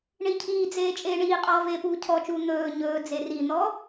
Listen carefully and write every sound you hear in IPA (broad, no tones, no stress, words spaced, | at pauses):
ɳicʰiːd͡zeː t͡ʃʼeːɳiːqʼɔː veːpuːcʰɔt͡ʃuː n̪ɵː ɲɵː d͡zerin̪ɔ